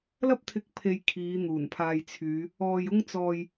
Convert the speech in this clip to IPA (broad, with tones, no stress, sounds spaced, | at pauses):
l ɐ˥ p̚ t̪ʰ ɪ˧ k̚ pʰ e˧ j kʰ iː˨˧ n̪ uː˨˩ n pʰ aː˧ j t͡sʰ yː˨˧ | ɔː˧ j ʊ˥ ŋ t͡s ɔː˧ j